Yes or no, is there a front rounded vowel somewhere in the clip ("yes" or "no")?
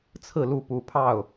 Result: no